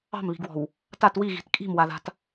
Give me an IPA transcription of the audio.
ɑ̤ m β i̤ ɡ w ɔ̤ w | t a t w i ɣ i̤ t kʼ i̤ m w a ð a̤ t

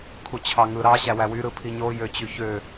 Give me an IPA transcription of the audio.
kʰ u t͡ɕʰ ɑ ŋ ɯ ɾ ɑ ɕ æ w æ w y ɾ ɯ pʰ i ɲ o j ø t͡ɕ y ç ø

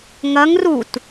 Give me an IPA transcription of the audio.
ŋ ɐ ŋ r u t

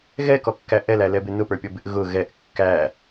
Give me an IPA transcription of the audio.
ɣ ɛ k ɔ kː æ ʔ ɛ l æ l ɛ b ɪ n ʊ p ə˞ pʲ ɔ b ɪ ʔ ɣ ʊ ɣ ɛ ʔ kː æ

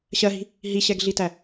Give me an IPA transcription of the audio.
ɕ ɜ ɦ i̤ | ɦ i ɕ ɛ ɡ ɮ i t æ

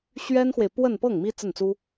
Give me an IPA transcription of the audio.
ɕ ɥ ɛ˥ n x w e˨ ɪ̯ p w ə˥˧ n p ɤ˥˩ ŋ m i˥ t͡s ə˥˩ n t͡s u˥

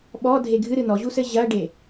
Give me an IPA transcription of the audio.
ɓ ɔ dʱ e ɡʱ ɨ ɾ ɨ n ɔ ʑ u s ɘ ʑ ɐ ɖ e

